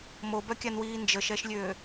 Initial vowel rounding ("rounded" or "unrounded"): rounded